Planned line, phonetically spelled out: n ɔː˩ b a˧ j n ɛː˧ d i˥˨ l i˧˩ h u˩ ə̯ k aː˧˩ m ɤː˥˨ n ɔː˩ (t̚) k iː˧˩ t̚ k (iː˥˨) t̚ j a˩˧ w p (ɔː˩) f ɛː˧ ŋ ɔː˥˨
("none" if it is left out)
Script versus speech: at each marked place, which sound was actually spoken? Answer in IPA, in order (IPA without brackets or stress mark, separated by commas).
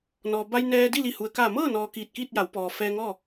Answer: none, iː˥˨, ɔː˩